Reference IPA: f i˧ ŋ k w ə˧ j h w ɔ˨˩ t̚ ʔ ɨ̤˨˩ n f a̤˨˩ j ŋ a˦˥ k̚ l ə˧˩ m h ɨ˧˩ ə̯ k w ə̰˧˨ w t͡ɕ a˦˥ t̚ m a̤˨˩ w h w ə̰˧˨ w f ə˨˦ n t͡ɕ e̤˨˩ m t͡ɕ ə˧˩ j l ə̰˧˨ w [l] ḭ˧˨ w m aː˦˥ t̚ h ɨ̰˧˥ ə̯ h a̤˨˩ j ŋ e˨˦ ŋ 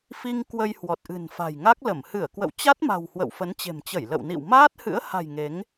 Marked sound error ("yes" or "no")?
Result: yes